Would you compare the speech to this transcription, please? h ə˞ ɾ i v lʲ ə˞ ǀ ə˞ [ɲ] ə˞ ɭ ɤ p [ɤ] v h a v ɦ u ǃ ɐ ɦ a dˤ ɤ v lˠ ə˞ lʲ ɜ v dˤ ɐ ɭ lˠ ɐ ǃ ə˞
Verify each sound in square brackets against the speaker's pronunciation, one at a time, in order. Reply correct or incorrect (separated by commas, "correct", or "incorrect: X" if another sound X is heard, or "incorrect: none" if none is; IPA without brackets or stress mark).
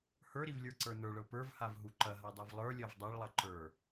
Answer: incorrect: n, incorrect: ə˞